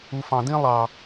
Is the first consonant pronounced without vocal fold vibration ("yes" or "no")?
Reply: yes